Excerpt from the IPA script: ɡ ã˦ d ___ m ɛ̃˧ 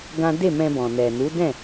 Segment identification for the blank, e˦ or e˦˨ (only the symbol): e˦˨